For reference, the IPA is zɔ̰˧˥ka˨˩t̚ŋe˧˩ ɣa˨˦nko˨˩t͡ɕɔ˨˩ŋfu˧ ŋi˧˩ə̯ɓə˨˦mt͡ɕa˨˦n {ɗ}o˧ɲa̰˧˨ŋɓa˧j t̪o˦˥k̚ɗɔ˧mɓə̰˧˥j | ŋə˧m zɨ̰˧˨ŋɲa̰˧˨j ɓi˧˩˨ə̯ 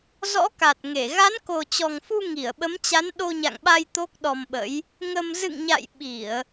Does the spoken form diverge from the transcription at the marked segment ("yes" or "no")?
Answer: no